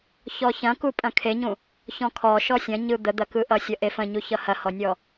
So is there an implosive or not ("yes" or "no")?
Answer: no